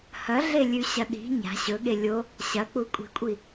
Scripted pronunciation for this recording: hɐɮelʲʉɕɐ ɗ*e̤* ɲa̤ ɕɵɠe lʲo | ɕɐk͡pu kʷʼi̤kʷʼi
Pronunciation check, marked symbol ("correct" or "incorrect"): incorrect